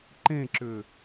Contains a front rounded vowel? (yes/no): yes